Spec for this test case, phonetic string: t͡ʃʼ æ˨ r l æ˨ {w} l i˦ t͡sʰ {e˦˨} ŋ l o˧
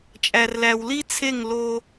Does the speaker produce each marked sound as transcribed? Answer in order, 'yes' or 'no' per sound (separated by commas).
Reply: yes, yes